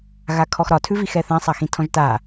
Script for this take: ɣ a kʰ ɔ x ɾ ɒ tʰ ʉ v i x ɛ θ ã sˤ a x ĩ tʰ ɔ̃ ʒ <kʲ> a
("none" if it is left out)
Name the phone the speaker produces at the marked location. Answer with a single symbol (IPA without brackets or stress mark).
t